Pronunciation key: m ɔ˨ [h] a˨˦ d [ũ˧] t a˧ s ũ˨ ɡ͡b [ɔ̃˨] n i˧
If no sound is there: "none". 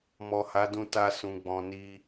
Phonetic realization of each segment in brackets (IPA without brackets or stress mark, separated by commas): h, ũ˧, ɔ̃˨